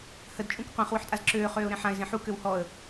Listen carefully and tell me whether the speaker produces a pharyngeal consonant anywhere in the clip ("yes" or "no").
yes